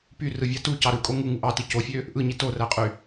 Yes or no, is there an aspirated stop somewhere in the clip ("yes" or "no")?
no